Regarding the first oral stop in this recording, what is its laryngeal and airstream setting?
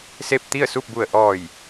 plain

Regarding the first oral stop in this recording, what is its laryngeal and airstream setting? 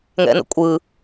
ejective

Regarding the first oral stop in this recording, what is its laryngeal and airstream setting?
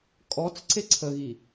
ejective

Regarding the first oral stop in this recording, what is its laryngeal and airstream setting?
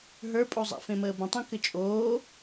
ejective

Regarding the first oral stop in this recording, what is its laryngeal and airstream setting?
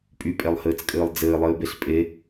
ejective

